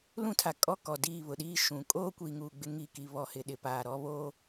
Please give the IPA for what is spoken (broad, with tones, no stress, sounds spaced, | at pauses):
l ũ˦ tʰ a˨ kʼ ɔ˦ k ɔ˨ d iː˦˨ β ʊ˨ ɗ iː˦ ʃ ũ˨ kʼ oː˦ kʷ i˨ ŋ uː˨ ɡ͡b ɪ˦ ŋ i˦˨ k i˨ β ɔ˨ h ɪ˨ ɗ ɪ˨ p aː˨ ɾ ɔ˦ β o˦